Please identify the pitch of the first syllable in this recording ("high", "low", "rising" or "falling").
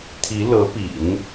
rising